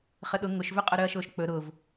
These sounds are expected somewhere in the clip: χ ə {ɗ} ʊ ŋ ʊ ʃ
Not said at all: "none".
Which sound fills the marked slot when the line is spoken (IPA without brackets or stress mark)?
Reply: ɗ